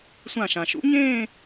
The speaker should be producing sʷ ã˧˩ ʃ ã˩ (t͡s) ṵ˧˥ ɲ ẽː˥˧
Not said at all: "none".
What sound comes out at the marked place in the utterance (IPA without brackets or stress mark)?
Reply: ʃ